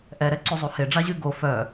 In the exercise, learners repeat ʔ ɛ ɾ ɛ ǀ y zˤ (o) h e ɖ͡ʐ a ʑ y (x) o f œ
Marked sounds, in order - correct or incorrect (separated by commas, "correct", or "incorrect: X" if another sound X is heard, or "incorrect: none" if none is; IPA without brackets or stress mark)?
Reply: incorrect: u, incorrect: ɡ